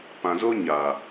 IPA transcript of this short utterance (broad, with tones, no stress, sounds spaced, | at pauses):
p ã˨ z o˦ ɲ a˨